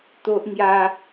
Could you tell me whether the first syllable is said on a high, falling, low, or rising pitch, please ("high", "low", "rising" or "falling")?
high